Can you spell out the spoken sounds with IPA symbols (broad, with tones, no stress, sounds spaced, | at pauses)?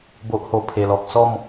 b o˨ ʔ h o˨˩ pʰ e˨˩ l ɔ˨ k̚ s ɔ˥˧ m